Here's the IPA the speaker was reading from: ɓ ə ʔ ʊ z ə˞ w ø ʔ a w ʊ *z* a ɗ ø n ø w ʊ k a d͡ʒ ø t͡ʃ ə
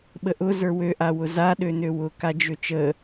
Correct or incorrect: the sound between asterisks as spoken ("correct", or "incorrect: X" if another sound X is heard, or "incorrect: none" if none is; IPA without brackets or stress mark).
correct